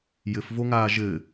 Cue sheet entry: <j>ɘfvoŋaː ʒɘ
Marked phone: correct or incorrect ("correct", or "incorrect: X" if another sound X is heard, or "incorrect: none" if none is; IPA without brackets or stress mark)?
correct